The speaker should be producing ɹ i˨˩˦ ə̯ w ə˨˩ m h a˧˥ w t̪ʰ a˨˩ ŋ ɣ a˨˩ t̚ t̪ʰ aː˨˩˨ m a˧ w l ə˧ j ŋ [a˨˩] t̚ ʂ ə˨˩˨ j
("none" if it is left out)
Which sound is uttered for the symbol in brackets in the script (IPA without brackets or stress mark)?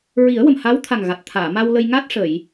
a˦˥